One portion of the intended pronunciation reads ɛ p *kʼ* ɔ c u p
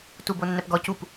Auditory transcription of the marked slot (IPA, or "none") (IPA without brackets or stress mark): ɡ